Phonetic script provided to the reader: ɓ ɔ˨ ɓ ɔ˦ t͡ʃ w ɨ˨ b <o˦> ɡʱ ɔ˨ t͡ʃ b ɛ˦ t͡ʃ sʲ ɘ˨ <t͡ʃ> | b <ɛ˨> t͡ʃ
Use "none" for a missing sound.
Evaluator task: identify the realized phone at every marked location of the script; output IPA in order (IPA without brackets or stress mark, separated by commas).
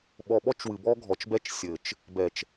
ɔ˦, t͡ʃ, ɛ˨